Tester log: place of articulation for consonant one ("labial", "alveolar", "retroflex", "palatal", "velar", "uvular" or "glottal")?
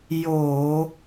palatal